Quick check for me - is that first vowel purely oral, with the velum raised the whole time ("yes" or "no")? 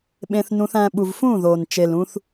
no